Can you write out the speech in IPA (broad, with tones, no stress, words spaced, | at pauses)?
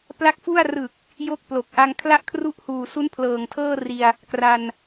pla˦˥k̚fu˥˩a̯ rɯ˨˩k̚ | jo˦˥k̚plo˨˩k̚ʔa˧ŋ kʰla˥˩ʔkʰru˥˩ʔhuː˨˩ su˦˥npʰlɤː˨˩ŋtʰɤː˥˩ri˧a̯ | kra˧n